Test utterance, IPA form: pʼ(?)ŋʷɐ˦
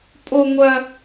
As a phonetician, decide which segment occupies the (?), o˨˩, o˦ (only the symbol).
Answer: o˦